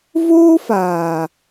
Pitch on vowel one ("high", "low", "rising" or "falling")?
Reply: high